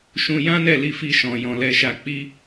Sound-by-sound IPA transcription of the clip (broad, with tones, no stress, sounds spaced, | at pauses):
ʃ ũ˧ j ã˦ n ɛ˦˨ l i˧ f i˧ ʃ ɔ̃˨ j ɔ̃˧ l ɛ˦ ʃ a˧ k͡p i˦